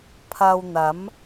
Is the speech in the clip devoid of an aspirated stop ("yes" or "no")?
no